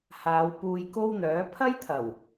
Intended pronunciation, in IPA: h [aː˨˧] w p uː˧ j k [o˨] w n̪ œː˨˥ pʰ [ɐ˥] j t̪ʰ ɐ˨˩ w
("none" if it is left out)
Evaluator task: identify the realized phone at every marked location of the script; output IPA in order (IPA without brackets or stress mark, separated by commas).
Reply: aː˨˧, o˥, ɐ˥